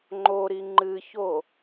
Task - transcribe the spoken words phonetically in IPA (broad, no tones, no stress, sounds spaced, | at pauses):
ŋ͡ǃ o ɾ i ŋ͡ǃ ɨ ç o